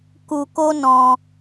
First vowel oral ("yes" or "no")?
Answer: yes